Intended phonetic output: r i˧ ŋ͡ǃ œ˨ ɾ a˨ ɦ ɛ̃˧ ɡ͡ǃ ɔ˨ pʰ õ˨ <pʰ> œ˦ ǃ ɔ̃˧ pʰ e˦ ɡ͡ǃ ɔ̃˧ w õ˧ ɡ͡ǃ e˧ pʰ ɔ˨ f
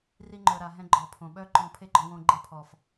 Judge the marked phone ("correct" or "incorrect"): incorrect